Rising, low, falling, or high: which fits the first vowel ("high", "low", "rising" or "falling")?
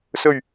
low